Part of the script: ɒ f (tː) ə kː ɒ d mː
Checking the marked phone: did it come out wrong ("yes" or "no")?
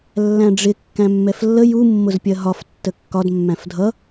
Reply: no